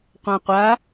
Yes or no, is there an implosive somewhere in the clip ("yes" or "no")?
no